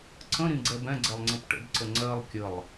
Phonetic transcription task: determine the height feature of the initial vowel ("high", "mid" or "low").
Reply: mid